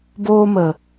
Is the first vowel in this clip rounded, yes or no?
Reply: yes